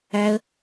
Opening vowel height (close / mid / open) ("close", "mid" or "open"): open